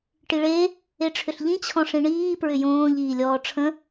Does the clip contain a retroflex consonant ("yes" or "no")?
yes